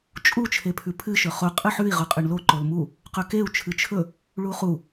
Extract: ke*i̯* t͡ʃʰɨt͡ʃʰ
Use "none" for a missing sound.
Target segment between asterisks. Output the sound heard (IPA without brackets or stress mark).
u̯